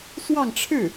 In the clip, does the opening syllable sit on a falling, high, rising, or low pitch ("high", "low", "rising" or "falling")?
falling